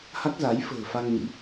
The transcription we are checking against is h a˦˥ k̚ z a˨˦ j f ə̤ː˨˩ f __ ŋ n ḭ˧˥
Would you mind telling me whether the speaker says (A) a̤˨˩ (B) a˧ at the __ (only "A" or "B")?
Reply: B